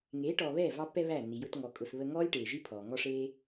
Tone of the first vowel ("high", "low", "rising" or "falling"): rising